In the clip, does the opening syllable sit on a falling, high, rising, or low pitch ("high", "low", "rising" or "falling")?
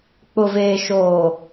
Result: low